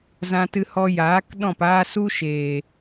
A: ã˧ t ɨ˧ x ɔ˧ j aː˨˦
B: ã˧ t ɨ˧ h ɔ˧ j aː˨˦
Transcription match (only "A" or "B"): B